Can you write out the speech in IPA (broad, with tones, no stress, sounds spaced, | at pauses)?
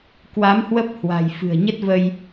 k w a˨˦ m h w ə˦˥ p̚ h w a̤˨˩ j f ɨ̤˨˩ ə̯ ɲ ə˦˥ t̚ v ə˧ j